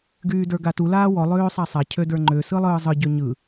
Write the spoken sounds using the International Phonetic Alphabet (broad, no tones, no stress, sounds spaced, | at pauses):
ɡ yː d ə˞ ɡ a t u l aː w ɔ lˠ øː sˤ a sˤ a cʰ ø d ə˞ ŋ͡ǃ ø s ɯ lˠ ɯː zˤ ɯ ɟ ø ɲ ɯ